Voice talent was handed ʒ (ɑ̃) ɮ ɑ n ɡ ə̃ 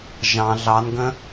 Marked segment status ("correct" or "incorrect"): correct